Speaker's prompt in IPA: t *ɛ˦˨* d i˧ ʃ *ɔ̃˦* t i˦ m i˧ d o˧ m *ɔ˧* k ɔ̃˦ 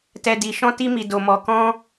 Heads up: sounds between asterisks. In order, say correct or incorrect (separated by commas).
incorrect, correct, correct